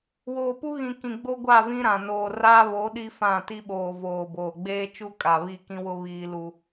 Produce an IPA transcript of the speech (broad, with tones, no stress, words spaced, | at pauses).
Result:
woː˨pu˦ɣĩ˨ kĩ˨ɡ͡bo˦ɡʷa˦˨ vĩ˦ɾã˨ noː˨ra˦βo˨˦ ɗi˦fã˦˨ti˦ ɓoː˨voː˨boː˨ ɡ͡beː˦t͡ʃu˦ kʼa˨βi˦˨kĩ˦wʊ˦ βiː˦lu˦